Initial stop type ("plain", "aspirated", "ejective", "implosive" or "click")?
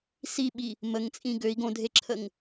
implosive